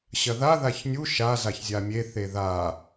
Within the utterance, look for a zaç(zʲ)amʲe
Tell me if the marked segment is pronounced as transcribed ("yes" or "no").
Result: yes